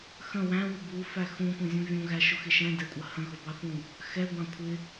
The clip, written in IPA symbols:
x ə̃ w æ̃ w ʊ b u f æ x ũ kʷ ə̃ zʲ ũ vʲ ũ ɣ æ ʃ ʊ x ɪ ʃ ɛ̃ d ɛ kʷʼ ə h ə̃ ɣ ʊ b ɑ θ ũ | x ɛ ɡʷ ɑ̃ kʷʰ ɪ

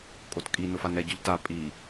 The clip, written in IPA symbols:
kʼ o t kʼ i n ʊ f a n ɛ ɟ ʊ ʎ t a pʼ i

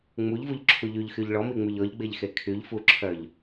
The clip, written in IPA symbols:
ŋ͡m u ʎ v u ʎ ǁʰ u ʎ y ʎ x y ʎ ɭ ɔ m i ŋ͡m y ʎ ɔ ʎ ɡ͡b e ʎ x e kʰ y ʎ f u ǁʰ œ ʎ

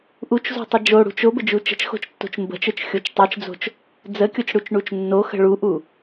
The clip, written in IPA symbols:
ʔ u t͡ʃ z o̤ tˤ ə d͡ʒ o ɽ ṳ t͡ʃ o b ə d͡ʒ u t͡ʃ ə̤ t͡ʃ x o̤ t͡ʃ tː o̤ t͡ʃ m b ə̤ t͡ʃ ə˞ t͡ʃ xʲ o t͡ʃ tˤ ə˞ t͡ʃ d͡z o̤ t͡ʃ | d͡z ə kʲ o t͡ʃ ɽ u t͡ʃ ɳ u t͡ʃ nː o x ə̤ ɭ u ʔ u

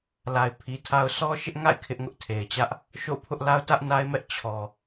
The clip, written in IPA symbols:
l a˨ ɪ̯ pʰ i˨ tʰ a˦ ʊ̯ s ɔ˦ ʃ ɪ˦ ʔ ŋ a̰˦˨ ɪ̯ kʰ ɪ˦ ʔ ŋ ʊ˦ ʔ tʰ e˨ ɪ̯ t͡ɕ ä˦ ʔ | ʃ o̰˦˨ pʰ ʊ˦ ʔ l a˦ ʊ̯ t ä˦ ʔ n a˦ ɪ̯ m ɛ˦ ʔ t͡ɕʰ ɔ˨

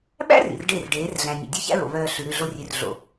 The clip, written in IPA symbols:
ɓ æ̰˦ r ḭ˨ r ɖ e˦˨ r ɖ eː˨˦ r ɮ æ̃˨ nʲ o̰˨ dʲ œ˦ ç æ̰˦ ɹ o̰˨ β œː˦ ɬ ʉ˨ ɾ ʉ˦˨ ɮ o˦ rʲ ʉ˨ r ɮ o̰˨

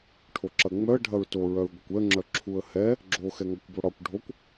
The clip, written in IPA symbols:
ʈʰ o ǁ ɐ ŋ͡m œ ə̯ ɖʱ ɐ ɹ t o ɹ œ ɹ ɡʷ ɐ kʷ ɛ ə̯ ŋ͡ǁ œ ǁʰ u ə̯ h ɛ | ɡ͡ǁ o x ɛ ŋ ɒ kʷ b o ɽ ɒ kʷ ɖʱ o kʷ

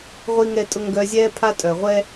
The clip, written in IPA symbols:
ʁʷ i˧ ŋ ɛ˧ tʼ ʊ˧ ŋ ɡ œ˧ zʲ ɛː˧ pʰ a˧ tʼ œ˩ ʁʷ ɛ˧

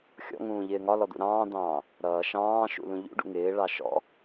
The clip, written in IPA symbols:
xʲ ɔ̰ ŋ ũː ʎ ɪː ŋ ɒ l ɔ d̪ ṵ ɾ ɑ̃ː d̪ ɑ̃ː | ɾ ʌː ʃ ɑ̃ː ʃ ṵ l ũ ʎ ṵ ɖ ṵ ŋ ɪː ɭ ɑ ʃ ɔ̰

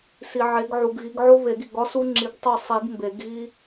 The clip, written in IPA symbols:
s i˨ ʕ e˨˦ ɡ ʕ u˨ ɡ ɣ i˨˦ ɡ ʕ o˥ β e˨˩˦ ɡ i˥˩ ɡ ɒ˥ s u˥ ŋ͡ǁ i˨˦ ɡ tˤ o˥˩ sˤ i˨˩˦ ɡ m b e˨˩˦ ɡ ɣ i˥

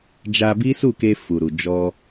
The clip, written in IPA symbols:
d͡ʒ a˧ b i˦ s u˦˨ k e˧ f u˨ ɾ u˨ d͡ʒ ɔ˧

